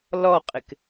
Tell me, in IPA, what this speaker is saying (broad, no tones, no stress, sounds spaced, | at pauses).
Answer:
l ɔ qʼ ɪ k